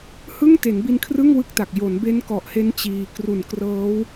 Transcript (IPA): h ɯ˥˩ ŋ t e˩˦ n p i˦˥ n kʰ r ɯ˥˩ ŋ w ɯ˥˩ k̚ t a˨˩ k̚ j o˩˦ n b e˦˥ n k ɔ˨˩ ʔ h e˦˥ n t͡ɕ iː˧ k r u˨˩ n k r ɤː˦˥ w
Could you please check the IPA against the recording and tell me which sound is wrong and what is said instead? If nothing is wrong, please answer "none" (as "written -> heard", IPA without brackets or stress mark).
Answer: p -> b